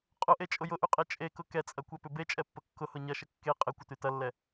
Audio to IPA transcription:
qʼʊʔet͡ʃʼʊ jʊʔyqʼe t͡ʃʼekʊ kɛt͡sʼɐkʷɛpʏ bet͡ʃʼɛpːə kːʊhʊ ɲɐʃə kːe qʼɪkʷəty tɐlːɛ

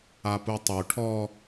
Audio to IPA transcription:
aputˤu ʈʰɔ

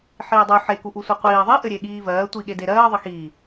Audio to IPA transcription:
ħiːdˤu ħekuʔu sʷiqʷiː ðˤiʔɘɾʲeɠiː vɜː tʷiɠedeɾɜː ðˤɘxiː

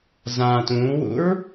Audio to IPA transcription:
zã tũːwṵɹ

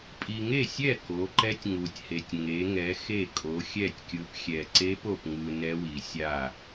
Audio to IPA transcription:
pʼi˨ŋe˥˩sʲɛ˥˩ ko˨˦ǃɛ˦˥tʲ ŋu˨tʲhe˨tʲ ŋe˨˦ŋɛ˨˦ xe˥˩kʼo˨˦xʲɛ˥˩tʲkʲɯ˨˦p xʲɛ˨ǀe˦˥po˨pŋɯ˨ nɛ˦˥wi˨sʲa˥˩

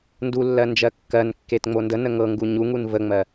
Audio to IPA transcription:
ndulːɜ nd͡ʒɜkːɜnkːet ŋ͡mondənə ŋɤŋɡu ɲuŋun vəŋ͡mɜ

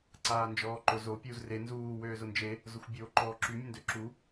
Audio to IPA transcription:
ǀaːnd͡ʒɔːǃʊ zo pʲuːzre nzuː wøːzʊnd͡ʒe | zʊxʷbʲoːǃɔːǁy mʲʊndøǁu

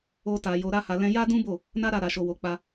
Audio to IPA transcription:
o˦ta˧ jo˧ɾa˦ha˧ lɛ̃˧ja˦dũ˦bo˦˨ | na˦ɾa˦˨ ɾa˧ʃo˧wo˧k͡pa˦

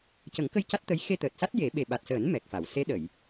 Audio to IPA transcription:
cə˨˩˦ŋkə˧j ca˦˥t̚t̪ə˧˥j xe˧t̪əː˨˩t̚sa˦˥t̚ je˨˩˦ɓe˨˩ ɓa˨˩t̚səː˨˩˦n mɛ˨˩k̚fa˨˩˨w se˧˥ɗə˨˩˨j

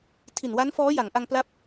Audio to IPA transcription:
tʰi˨˩nwa˦˥nfɔː˦˥ ja˩˦ŋʔa˧ŋpla˦˥p̚

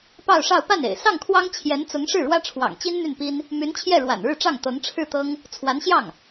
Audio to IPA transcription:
pɑ˥˧ʊ̯ʂɑ˥˧ʊ̯ pa˥˩nḛ˨˩ɪ̯ sɑ˥˩ŋkʰwɑ˥ŋ t͡ɕʰjɛ˧˥nt͡sʊ˧˥ŋ ʂɻ̩˥˩ɻwä˥ʈ͡ʂʰwɑ̰˨˩ŋt͡ɕi˥n n̪y˥˩npi˥n | my˧˥nt͡ɕʰjɛ˥˩ ɻwa̰˨˩nɻɻ̩˥˧ʈ͡ʂɑ˥˩ŋ t̪ɤ˧˥ŋ ʈ͡ʂʰɻ̩˥˩t̪ɤ˥ŋ | t͡sʰwa˧˥nɕjɑ˥˩ŋ

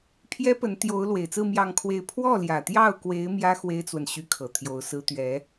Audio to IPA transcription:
pʰjɛ˥pə˧˥n t̪jo˧˥ʊ̯ lwe˨˩ɪ̯t͡sɹ̩˥˧ mjɑ˥˧ŋkʰwe˥˧ɪ̯ pʰwɔ˥˩ljä˨˩t̪jɑ˥˩ʊ̯kwe˧˥ɪ̯ mjä˥ xwe˥ɪ̯t͡swə˨n ɕy˥kʰɤ˨˩ t̪ʰjo˧˥ʊ̯sɹ̩˥ t̪ɥɛ˧˥

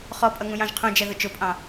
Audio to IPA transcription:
χɔpʼʌŋũjɑ̃ʒ qʰũd͡ʒɛðʊ t͡ʃʊpʼɑ̃

